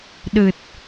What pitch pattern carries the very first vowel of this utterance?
low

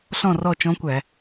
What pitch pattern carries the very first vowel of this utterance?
falling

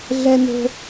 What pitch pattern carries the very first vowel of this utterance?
high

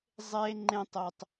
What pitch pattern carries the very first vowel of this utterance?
high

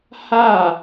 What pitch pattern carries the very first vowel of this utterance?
falling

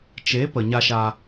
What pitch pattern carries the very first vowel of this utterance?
rising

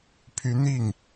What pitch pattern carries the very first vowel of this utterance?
rising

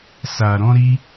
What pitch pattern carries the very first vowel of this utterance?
low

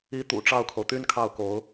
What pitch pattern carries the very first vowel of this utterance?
rising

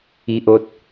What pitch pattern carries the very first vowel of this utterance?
high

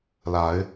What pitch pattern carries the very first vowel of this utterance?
rising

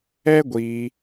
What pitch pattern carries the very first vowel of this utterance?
high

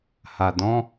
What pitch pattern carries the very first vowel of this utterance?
low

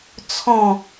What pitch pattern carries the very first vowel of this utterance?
falling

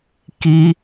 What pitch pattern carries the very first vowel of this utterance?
high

